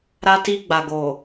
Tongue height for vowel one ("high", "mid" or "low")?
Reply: low